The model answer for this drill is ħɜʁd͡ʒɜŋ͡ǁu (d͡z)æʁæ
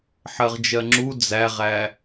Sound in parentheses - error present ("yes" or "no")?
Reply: no